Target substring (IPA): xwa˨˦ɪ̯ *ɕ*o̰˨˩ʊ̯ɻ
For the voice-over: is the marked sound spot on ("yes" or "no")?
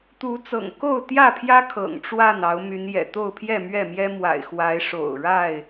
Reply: no